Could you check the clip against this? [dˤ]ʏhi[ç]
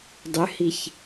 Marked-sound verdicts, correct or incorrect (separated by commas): correct, correct